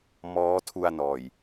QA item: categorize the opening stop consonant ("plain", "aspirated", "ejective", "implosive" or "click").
aspirated